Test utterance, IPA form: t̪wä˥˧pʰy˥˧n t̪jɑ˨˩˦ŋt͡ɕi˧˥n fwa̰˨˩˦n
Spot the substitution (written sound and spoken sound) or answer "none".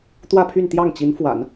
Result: ɑ˨˩˦ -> ɑ˥˩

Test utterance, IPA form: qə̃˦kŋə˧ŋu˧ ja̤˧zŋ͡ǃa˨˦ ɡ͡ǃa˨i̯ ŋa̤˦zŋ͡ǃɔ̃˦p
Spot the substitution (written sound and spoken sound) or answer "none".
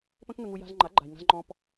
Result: q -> p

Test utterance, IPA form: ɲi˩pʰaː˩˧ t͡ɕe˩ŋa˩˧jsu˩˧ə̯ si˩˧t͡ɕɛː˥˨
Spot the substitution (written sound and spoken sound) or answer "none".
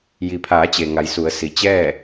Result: ɲ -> j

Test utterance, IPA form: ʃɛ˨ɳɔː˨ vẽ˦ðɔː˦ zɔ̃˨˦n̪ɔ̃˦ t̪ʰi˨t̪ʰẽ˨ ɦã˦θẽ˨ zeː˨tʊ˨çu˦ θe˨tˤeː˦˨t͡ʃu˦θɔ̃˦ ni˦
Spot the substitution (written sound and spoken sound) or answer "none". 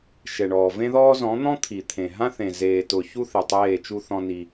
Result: none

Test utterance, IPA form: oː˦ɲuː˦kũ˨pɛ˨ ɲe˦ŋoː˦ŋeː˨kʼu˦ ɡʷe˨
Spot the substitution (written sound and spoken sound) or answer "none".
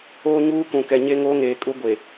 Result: p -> k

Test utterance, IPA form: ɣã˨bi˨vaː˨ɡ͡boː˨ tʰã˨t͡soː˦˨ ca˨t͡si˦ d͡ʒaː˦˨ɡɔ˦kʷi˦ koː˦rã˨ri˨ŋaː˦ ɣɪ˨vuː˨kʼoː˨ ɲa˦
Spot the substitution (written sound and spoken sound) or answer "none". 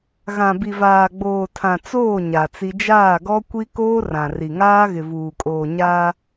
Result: c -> ɲ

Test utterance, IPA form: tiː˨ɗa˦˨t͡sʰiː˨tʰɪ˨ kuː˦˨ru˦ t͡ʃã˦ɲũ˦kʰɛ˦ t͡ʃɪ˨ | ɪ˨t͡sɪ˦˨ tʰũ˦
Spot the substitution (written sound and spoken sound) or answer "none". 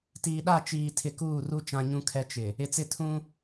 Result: t͡sʰ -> t͡ʃ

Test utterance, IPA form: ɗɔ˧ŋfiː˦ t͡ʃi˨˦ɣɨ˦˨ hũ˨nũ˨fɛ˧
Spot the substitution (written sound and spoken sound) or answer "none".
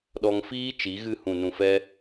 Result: none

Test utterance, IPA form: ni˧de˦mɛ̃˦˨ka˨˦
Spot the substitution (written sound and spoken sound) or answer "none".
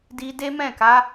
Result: n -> d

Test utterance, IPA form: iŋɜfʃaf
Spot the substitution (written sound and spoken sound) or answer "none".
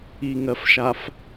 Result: none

